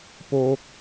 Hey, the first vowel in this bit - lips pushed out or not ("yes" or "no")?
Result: yes